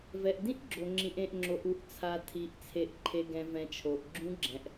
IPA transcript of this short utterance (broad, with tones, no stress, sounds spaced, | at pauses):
v ɛ˨ ʔ d ĩ˦˥ ʔ ɡ͡ǁ o˨ ŋ͡ǁ ĩ˨ ʔ ẽ˨ ʔ ŋ͡ǁ o˨ ʔ u˨ ʔ t͡sʰ a˨ tʰ i˨ ʔ t͡sʰ e˨ ʔ ǃʰ e˨ ɡ ɛ̃˨ v ɛ̃˨ t͡ʃʰ o˨ ʔ ɡ͡ǁ ũ˦˥ ɡ͡ǁ ɛ̃˨ ʔ